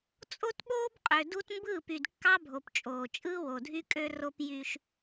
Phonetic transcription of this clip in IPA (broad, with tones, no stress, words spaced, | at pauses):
t͡sʼo˦tɓoː˦bqʼø˨ du˦t mbɯː˦˨py˨dkːɑ˦bʱo˨p t͡ʃʼoː˨ t͡ʃʼɯː˦wo˨dʱy˦kʼø˦ ro˦pjy˦ʃ